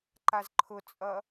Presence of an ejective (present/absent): present